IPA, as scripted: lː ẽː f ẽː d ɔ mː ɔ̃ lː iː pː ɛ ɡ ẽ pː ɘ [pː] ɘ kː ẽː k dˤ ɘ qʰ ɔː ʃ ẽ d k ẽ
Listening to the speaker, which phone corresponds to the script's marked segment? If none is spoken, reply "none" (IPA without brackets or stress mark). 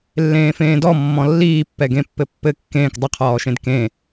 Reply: pː